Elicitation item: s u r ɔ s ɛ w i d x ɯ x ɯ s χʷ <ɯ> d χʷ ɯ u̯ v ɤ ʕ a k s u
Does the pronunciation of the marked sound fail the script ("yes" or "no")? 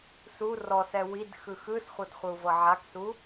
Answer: yes